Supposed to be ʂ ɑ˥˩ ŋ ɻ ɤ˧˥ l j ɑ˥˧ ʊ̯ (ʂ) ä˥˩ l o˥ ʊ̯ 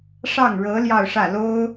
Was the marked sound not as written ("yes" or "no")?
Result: no